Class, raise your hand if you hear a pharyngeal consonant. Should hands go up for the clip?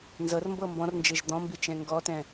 no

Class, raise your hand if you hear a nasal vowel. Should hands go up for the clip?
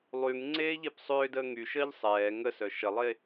no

